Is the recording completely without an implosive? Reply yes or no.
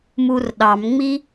no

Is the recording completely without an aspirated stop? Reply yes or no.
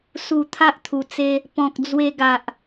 no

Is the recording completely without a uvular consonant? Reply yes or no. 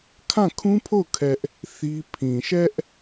yes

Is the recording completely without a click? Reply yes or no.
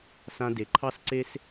no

